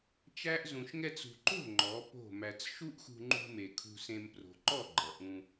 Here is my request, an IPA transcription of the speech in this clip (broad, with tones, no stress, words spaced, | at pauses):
t͡ʃæ˦ʔ zũ˨ʃŋɛ˧t͡sṳ˨ǃo̤˦˨ ŋ͡ǃɔ˨˦po̤˦˨mæ˧t͡s ʃu˦ʔxṳ˧ŋ͡ǃṳ˧me˨ kʰṳ˧sẽ˧m pro̤˨ǃɔ˦˨ ɡ͡ǃʌ˨ʔũ˧